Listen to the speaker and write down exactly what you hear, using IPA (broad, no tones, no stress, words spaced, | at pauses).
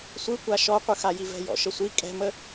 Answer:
sʷɯkʷa ʃɔqʷɯxaji vɛ̤jɔ̰ʃəsʷi kʼɛ̤mə